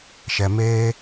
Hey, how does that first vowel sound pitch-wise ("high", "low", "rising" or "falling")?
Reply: low